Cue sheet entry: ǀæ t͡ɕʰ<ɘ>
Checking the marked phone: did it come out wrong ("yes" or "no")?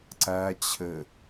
no